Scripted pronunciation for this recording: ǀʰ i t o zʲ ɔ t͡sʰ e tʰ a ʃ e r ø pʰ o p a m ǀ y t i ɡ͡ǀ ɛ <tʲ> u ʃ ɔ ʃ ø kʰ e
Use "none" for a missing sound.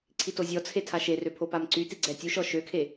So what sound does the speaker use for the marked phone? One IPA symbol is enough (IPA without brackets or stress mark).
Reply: tʲ